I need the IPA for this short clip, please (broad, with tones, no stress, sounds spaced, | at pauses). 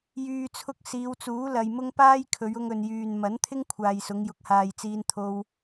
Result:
j yː˨ t͡sʰ ʊ˧ k̚ s iː˨˧ w t͡s uː˨˥ l ɐ˨ j m ʊ˥ ŋ p aː˥ j kʰ ɵ˨˧ ɥ ʊ˧ ŋ ɵ˨ n j yː˨ n m ɐ˨˥ n t̪ʰ ɪ˥ ŋ kʷʰ aː˨ j s ʊ˨˧ ŋ j ʊ˨ k̚ h aː˨ j t͡s iː˧ n t̪ʰ o˧ w